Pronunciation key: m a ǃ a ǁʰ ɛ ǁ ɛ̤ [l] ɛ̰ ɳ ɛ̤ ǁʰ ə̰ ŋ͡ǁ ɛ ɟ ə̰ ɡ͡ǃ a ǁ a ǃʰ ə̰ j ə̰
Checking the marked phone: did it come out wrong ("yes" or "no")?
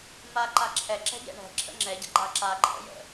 yes